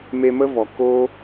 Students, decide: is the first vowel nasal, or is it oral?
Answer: oral